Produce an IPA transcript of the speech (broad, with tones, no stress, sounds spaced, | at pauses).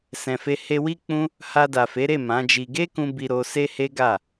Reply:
s ɛ̃˨ f e˧ h e˧ w i˦ k͡p ũ˦ | h a˧ d a˨ f e˨˦ ɾ e˦˨ m ã˨˦ d͡ʒ i˧ ɡ e˦ k ũ˧ b i˧ ɾ o˧ s e˦ h e˦ ɡ a˦˨